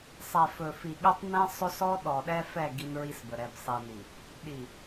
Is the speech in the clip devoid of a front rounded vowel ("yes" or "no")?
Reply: yes